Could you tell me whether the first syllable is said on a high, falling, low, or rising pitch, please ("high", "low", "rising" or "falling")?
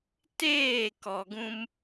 falling